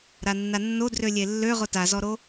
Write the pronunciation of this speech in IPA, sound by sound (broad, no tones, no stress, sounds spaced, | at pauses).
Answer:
ɾ a nː a nː o d r ø lʲ e lː ø ʁ o t a z ɔ ɾ o